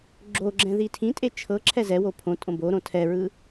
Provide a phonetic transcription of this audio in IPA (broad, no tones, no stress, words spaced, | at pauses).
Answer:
ɡ͡ǁoɡ͡ǁɛ̃ ðitʰĩtʼe t͡ʃʰɤ ǁʰɛzɛwo pʰõtʼõ boɾõ tʰɛɹɯ